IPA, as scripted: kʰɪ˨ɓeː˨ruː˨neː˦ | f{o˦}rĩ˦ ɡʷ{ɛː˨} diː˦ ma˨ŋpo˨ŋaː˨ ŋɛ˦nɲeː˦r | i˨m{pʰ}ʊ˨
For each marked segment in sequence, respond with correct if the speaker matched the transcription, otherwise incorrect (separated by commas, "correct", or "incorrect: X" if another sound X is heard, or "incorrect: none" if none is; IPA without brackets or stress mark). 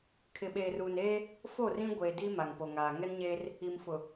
incorrect: o˦˨, incorrect: eː˨, incorrect: f